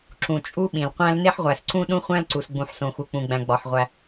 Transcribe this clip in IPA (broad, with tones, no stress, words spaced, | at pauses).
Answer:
ǁũ˩ t͡ʃʼu˥ɓĩ˩lqʷæ̃˥l ne˥ħʁʷæ˩sǀũ˥ ɗũ˥χʷæ̃˥lǀu˩s ɡ͡bũ˩ħsõ˩xu˩k͡pũ˩ ɡ͡bæ̃˩ɡ͡bɒ˩ħ ʁʷæ˩